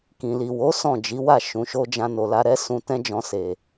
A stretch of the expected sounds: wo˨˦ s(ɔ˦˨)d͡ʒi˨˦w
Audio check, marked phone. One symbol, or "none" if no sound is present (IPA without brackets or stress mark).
ɔ̃˦˨